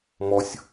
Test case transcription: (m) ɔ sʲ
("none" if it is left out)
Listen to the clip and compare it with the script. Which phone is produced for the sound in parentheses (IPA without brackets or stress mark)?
m